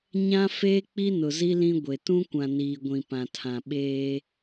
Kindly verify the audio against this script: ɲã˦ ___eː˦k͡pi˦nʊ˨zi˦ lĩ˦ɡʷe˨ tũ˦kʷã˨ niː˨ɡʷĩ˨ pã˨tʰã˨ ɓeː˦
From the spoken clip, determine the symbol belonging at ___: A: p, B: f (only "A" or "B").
B